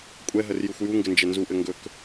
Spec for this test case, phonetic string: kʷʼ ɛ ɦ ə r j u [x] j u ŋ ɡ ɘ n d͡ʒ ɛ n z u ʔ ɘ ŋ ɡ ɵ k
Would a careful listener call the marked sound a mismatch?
yes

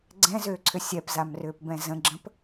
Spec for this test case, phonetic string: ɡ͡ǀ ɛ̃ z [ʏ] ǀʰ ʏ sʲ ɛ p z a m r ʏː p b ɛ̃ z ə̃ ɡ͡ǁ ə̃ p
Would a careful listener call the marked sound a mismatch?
yes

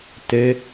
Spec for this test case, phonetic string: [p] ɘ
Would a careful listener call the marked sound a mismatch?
yes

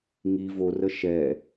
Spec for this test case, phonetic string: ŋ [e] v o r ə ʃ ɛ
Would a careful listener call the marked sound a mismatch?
yes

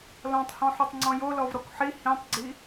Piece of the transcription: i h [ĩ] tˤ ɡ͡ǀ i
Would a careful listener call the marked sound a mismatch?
no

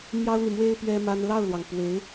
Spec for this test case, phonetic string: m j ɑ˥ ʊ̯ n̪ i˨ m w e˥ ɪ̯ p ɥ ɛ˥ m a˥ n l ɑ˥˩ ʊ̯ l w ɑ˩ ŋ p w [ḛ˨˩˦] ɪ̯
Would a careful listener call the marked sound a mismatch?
yes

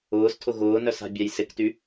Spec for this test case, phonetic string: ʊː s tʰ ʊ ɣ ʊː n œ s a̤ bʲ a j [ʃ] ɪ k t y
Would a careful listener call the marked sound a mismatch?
yes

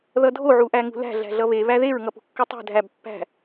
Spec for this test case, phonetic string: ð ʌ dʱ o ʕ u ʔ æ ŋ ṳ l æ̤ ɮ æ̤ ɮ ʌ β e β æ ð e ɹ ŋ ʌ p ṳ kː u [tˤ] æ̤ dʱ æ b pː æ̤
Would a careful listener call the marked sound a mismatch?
no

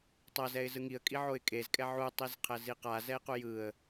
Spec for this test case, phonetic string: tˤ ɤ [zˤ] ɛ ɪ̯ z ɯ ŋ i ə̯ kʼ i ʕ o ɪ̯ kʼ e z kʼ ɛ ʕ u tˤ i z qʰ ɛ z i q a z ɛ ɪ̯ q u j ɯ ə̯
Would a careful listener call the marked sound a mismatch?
yes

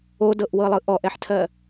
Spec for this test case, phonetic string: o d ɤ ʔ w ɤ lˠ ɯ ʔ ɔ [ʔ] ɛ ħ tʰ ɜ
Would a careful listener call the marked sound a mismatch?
no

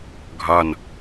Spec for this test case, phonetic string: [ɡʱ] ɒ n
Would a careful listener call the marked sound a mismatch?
no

